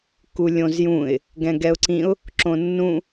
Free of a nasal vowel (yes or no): no